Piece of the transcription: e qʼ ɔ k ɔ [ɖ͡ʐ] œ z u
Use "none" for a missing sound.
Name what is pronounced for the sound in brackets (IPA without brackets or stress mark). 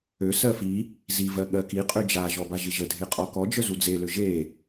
d͡ʒ